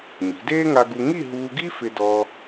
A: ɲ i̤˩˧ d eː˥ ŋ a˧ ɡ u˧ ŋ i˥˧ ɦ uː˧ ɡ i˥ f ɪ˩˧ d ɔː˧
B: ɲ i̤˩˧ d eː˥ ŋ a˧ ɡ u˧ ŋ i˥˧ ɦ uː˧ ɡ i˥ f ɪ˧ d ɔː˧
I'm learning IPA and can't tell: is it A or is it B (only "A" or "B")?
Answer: B